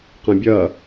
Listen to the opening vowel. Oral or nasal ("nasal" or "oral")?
nasal